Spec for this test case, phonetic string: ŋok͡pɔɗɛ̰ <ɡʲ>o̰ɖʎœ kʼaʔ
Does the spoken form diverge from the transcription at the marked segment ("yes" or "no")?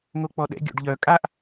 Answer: no